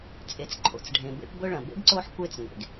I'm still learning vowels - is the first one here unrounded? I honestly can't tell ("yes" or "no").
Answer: yes